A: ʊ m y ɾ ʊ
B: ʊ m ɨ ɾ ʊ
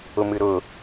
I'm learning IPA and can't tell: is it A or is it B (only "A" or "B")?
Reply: B